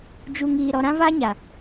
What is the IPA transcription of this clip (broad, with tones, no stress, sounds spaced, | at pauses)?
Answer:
d͡ʒ u˨ ŋ iː˨ ɾ ɔ˨ ɾ ã˦ v a˦ ɲ a˨